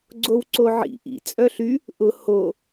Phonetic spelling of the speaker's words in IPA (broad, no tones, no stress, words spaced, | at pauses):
ɡ͡ǀowǀoʕḭ ʔḭ t͡sʼœɬy | ʔʊ ho